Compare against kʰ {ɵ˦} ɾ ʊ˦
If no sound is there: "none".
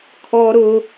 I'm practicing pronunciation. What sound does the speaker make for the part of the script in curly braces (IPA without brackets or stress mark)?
ɔ˦